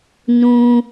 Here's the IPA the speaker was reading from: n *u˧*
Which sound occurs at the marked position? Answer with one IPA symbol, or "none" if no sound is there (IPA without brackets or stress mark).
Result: ũ˧